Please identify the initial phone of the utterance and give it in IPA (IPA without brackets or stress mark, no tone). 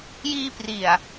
j